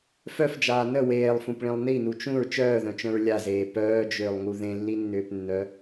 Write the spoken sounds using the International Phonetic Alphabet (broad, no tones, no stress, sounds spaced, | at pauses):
f œ f d͡ʒ aː n ə w eː lˠ f ũ p ɭ ĩ lˠ n i n u t͡ʃ ũ ɹ t͡ʃ œː ð œ̃ t͡ʃ œ̃ ɹ lʲ a z eː p œː d͡ʒ ʏː lˠ ŋ u ð ẽ lː i nː ʏː p nː œ